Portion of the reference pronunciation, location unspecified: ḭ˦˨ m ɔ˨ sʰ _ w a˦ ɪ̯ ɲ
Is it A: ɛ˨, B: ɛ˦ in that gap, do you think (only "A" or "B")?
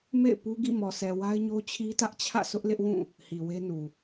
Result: A